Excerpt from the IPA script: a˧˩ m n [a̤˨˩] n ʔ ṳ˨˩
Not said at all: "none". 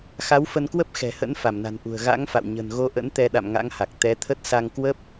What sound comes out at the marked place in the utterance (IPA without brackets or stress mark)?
a̤˨˩